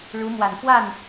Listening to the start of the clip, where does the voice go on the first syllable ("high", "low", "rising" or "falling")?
rising